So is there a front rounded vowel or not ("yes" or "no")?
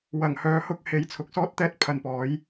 yes